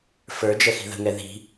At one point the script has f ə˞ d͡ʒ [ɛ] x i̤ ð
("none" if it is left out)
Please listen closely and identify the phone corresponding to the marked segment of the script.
ɛ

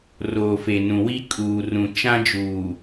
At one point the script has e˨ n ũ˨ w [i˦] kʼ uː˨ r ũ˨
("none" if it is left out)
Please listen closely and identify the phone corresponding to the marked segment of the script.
i˦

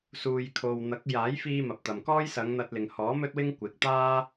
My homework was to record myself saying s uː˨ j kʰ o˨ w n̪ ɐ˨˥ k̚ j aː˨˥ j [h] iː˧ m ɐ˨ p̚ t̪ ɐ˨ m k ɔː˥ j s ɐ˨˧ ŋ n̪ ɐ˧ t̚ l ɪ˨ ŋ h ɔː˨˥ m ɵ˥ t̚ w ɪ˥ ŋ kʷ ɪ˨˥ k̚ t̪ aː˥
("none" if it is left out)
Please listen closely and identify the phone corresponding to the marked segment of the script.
f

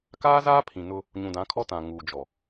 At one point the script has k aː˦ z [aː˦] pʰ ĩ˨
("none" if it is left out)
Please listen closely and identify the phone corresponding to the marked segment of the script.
aː˦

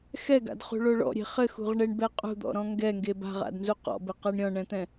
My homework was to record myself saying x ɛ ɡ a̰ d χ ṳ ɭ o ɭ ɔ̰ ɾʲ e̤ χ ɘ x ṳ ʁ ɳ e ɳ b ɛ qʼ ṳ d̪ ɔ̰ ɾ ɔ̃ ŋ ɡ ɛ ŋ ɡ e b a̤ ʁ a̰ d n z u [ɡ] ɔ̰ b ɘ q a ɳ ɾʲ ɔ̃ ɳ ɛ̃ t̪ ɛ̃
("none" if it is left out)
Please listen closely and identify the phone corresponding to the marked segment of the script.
q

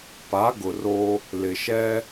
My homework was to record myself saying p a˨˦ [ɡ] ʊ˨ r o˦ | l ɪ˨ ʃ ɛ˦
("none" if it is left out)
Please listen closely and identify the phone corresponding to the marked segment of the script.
ɡ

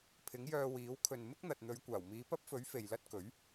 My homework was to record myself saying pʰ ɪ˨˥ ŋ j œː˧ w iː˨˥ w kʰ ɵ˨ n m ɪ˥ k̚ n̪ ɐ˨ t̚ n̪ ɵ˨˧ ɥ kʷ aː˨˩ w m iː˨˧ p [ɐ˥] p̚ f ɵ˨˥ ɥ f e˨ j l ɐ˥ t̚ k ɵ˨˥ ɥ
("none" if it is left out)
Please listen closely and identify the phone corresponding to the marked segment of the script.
ɐ˥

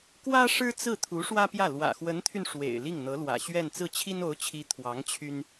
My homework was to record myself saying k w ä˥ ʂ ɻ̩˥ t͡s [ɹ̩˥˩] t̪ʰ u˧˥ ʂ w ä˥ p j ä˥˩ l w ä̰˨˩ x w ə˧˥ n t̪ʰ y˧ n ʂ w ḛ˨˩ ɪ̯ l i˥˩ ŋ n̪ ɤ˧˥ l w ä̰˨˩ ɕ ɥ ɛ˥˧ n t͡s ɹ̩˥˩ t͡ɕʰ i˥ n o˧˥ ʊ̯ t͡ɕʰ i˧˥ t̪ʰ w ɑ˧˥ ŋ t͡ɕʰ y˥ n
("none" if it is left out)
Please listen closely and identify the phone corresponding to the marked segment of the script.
ɹ̩˥˩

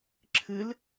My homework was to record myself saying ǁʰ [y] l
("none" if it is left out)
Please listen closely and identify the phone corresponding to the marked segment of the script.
ɨ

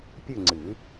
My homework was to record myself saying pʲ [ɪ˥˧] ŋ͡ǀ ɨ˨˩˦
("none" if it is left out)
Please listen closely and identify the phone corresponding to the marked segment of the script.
ɨ˥˧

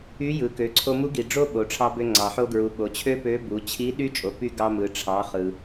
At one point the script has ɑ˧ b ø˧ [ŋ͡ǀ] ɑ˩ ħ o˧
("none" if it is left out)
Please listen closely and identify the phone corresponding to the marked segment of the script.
ŋ͡ǀ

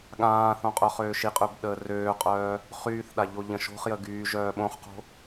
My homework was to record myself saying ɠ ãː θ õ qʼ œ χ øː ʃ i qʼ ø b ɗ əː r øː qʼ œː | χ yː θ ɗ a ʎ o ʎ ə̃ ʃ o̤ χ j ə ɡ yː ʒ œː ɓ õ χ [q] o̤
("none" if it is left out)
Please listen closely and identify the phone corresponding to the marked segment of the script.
q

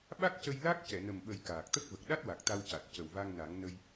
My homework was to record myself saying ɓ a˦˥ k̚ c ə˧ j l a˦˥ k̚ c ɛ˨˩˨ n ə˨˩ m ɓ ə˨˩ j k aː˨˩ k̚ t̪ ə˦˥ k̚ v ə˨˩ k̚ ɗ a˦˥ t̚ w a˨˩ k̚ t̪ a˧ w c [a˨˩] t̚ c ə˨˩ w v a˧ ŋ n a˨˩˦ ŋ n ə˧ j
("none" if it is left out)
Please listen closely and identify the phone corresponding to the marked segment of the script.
a˨˩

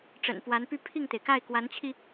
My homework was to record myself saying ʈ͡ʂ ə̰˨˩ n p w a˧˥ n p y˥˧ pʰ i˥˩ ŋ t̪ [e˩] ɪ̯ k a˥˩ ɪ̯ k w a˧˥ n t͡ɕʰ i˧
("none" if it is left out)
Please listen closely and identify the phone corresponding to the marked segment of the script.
e˩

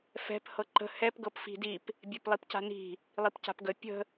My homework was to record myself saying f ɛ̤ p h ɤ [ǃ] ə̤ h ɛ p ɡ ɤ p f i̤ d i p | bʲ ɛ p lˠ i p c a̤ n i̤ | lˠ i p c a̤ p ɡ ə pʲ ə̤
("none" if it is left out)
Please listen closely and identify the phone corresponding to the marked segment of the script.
ǃ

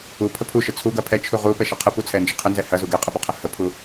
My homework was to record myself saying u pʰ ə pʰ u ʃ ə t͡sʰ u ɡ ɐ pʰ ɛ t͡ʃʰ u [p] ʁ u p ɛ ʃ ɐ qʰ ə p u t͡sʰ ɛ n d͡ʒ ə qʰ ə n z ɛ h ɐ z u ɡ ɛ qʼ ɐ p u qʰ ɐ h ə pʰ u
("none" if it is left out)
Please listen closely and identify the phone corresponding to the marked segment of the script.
none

